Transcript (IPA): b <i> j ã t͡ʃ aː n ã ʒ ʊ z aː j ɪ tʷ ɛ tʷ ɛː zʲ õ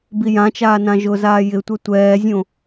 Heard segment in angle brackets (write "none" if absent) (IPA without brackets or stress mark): i